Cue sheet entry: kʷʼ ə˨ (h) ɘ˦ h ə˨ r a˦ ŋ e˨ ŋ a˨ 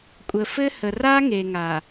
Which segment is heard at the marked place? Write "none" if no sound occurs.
f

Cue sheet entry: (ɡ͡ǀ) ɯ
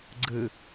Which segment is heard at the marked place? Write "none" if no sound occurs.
ɡ͡ǀ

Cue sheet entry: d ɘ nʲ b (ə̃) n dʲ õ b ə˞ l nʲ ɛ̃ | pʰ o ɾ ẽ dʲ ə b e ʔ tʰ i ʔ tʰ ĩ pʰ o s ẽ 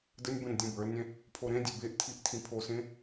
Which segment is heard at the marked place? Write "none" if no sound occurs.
ə̃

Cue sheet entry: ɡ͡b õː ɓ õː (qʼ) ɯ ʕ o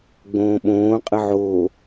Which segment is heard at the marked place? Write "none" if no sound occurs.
qʼ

